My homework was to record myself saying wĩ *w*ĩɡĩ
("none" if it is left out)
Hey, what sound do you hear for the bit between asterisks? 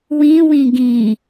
w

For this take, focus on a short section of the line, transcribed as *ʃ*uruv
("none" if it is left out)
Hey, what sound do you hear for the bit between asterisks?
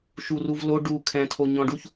ʃ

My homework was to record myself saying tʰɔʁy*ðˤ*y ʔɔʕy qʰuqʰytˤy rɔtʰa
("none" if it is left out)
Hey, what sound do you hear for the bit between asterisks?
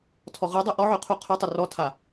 dˤ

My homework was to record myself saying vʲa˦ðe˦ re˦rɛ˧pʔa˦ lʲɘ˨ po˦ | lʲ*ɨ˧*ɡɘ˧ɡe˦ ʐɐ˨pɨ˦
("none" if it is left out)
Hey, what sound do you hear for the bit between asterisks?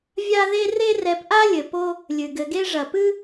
ɨ˨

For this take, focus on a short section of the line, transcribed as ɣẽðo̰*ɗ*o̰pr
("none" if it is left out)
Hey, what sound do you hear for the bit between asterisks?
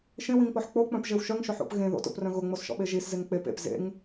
t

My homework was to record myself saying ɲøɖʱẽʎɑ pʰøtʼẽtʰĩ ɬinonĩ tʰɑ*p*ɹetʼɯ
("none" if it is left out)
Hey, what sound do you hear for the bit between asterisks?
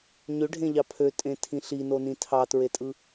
t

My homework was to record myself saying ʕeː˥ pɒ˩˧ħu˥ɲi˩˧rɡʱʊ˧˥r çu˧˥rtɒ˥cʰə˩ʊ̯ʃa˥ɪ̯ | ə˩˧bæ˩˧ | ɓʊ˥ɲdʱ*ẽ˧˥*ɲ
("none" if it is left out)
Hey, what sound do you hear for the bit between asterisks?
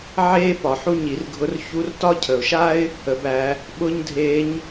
e˧˥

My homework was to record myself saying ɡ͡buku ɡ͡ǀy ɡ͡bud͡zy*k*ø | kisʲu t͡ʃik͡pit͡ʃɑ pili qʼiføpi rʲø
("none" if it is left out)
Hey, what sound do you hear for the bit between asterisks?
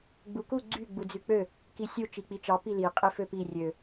k͡p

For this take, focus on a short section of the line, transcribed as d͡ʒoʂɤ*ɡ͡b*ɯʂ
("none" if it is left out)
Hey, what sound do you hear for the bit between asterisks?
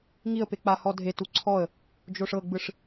ɡ͡b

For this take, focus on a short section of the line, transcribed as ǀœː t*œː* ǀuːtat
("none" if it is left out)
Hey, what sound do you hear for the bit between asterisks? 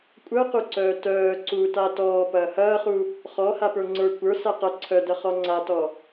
œː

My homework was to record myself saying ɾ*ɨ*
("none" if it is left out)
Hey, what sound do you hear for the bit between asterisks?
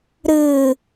ɨ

